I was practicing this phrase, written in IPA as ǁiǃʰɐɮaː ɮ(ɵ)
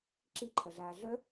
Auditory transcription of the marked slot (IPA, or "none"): œ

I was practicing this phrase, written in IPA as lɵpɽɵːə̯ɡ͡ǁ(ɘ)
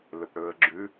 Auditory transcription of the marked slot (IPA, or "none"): ʉ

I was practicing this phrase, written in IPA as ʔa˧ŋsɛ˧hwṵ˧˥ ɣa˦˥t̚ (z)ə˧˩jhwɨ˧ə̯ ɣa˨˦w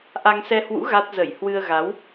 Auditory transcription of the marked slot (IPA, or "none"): z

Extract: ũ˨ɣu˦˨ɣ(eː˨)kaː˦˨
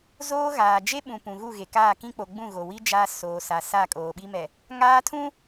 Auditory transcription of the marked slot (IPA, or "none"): e˨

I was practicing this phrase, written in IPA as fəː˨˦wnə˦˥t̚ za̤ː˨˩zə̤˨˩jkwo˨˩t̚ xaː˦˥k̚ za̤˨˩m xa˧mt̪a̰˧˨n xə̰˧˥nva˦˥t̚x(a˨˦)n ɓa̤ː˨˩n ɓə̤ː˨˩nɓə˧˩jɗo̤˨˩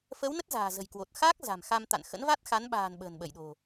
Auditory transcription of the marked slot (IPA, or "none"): a˨˦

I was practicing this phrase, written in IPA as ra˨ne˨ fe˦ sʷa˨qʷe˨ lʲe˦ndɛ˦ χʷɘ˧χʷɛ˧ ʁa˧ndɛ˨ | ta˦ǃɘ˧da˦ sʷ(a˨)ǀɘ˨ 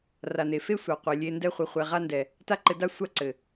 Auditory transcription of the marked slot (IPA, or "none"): a˦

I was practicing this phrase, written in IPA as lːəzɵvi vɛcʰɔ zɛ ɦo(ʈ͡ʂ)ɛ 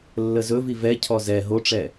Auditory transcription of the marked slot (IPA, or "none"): ʈ͡ʂ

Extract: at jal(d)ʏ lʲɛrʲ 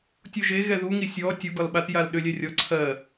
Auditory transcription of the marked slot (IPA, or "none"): ɗ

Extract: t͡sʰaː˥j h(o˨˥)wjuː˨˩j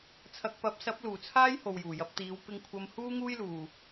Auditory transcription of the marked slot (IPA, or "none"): o˨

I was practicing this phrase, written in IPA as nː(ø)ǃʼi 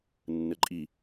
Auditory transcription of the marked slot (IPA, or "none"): ə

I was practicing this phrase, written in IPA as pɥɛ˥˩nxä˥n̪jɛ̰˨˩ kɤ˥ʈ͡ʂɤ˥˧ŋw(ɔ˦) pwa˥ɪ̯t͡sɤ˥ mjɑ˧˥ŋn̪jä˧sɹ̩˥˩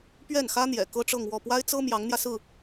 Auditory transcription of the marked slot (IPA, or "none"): ɔ˥˩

